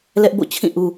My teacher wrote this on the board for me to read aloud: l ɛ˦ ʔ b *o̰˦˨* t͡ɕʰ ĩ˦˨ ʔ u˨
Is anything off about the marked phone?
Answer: no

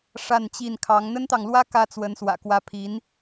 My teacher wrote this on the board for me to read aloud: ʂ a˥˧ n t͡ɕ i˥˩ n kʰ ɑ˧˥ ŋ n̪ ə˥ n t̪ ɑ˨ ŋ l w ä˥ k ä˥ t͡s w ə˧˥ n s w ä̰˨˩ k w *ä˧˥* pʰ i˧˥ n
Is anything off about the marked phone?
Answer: no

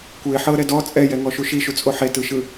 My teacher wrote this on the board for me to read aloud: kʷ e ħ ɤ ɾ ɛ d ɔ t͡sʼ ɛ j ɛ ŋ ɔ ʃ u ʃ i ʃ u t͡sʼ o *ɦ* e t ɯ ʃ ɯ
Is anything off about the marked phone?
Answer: yes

